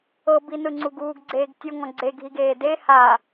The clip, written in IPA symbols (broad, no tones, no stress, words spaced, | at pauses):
ɤbinɯŋ͡ǀuɡ uːɡɡ͡ǀeːɡtʲo ŋɔ̃ɡ͡ǀeɡʱiɡ eːde ha